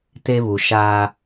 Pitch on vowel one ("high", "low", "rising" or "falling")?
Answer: high